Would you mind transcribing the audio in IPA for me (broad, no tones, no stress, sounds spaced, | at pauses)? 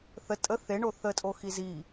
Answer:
θ ə tʼ ə θ e ɳ o θ ə tʼ o x i z i